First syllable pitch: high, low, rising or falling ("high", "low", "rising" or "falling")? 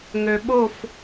low